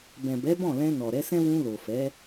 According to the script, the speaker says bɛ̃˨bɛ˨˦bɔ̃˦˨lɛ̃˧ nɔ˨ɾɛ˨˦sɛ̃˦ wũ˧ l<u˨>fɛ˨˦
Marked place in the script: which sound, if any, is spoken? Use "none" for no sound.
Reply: o˨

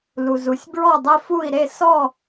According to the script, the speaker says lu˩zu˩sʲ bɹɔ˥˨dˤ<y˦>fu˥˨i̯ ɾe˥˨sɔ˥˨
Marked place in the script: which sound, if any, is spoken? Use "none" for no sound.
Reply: e˦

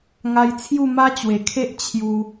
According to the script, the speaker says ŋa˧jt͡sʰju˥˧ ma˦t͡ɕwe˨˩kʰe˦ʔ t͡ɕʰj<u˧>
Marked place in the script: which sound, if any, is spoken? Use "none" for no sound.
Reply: u˧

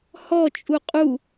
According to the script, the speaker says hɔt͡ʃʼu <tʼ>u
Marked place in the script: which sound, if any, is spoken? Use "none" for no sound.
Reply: qʼ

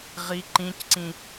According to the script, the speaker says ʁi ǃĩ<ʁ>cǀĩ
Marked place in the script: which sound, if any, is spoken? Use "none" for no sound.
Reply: none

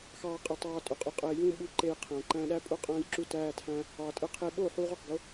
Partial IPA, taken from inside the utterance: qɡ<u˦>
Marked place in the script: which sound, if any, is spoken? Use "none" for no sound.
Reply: o˦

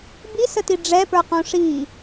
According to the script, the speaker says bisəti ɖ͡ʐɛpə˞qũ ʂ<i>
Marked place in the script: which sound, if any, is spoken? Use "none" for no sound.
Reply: i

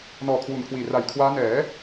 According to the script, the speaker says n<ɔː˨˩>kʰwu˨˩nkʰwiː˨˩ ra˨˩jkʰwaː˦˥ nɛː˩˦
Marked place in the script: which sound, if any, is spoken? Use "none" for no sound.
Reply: ɔː˨˩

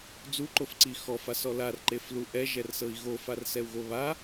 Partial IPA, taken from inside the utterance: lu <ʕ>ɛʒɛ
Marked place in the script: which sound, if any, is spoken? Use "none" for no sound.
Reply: ʔ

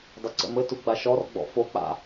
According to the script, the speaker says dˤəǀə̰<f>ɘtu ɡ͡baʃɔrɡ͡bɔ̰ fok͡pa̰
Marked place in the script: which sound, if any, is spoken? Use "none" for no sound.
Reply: m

